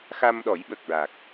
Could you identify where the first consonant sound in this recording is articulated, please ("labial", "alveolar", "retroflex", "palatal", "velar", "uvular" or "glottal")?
velar